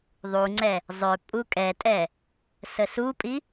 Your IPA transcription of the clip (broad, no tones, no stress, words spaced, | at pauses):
ðˤuŋ͡ǀɛ | zˤʏ pʼukʼɛtʼɛ | səsupʼi